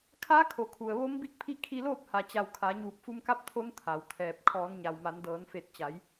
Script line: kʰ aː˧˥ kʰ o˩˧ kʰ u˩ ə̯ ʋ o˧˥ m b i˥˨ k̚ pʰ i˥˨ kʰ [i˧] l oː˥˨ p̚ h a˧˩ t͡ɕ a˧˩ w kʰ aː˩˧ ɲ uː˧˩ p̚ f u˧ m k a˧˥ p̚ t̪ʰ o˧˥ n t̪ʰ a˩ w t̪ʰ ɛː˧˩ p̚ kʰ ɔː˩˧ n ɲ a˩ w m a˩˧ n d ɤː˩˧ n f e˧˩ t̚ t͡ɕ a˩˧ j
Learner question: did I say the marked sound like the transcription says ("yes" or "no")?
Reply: yes